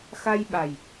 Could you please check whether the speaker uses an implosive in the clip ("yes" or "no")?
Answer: yes